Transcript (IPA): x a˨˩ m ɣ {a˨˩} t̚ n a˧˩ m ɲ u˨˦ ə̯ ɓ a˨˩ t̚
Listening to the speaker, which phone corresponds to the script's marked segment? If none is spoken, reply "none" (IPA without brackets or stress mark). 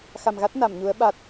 a˦˥